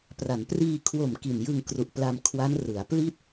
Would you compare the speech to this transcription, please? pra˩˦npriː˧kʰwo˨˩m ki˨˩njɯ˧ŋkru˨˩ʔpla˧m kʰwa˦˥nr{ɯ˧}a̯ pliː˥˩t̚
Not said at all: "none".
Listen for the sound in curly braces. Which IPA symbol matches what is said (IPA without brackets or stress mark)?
ɯ˩˦